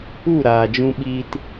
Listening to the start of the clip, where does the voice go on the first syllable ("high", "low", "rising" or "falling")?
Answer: falling